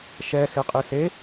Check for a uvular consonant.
present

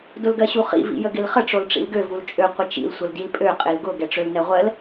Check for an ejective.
present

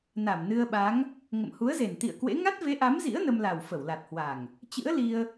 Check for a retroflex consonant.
absent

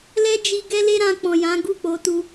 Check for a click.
absent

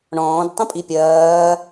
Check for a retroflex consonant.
present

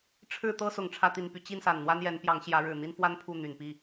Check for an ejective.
absent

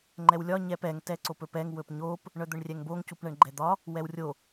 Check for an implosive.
absent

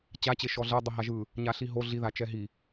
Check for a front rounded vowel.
absent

